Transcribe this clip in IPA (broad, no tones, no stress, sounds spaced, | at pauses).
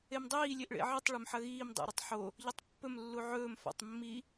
e m dˤ iː lʲ e ʔ ɭ ḛ ʕ ɨ tˤ ɭ ɵ m ħ ɐ ɣ iː m dˤ ḛ ɾ ɨ tˤ ħ o | ʎ ɐ tˤ pː ɵ m lː u ʕ ɵː m f a̰ tˤ mː i